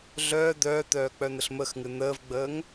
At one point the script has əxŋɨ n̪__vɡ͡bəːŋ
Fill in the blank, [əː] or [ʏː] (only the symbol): əː